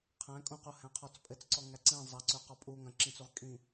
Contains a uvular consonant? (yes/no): yes